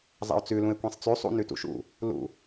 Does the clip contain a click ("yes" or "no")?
no